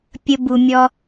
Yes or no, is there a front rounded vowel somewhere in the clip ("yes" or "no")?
no